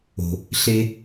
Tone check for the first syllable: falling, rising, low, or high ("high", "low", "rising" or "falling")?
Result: low